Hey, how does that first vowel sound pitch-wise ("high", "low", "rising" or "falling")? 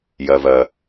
low